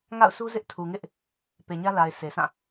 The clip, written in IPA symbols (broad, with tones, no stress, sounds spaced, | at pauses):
ŋ a̰˦˨ ʊ̯ s u˦ z ɪ˦ ʔ tʰ u˨ ŋ ɪ˦ ʔ | p e˨ ɲ ä˦ l a˨ ɪ̯ s e˨ sʰ ã˦˨